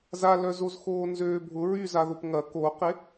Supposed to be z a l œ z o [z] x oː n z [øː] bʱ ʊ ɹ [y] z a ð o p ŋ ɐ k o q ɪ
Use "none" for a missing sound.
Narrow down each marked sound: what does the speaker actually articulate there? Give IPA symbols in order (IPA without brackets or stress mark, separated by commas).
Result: z, øː, y